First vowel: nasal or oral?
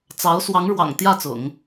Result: oral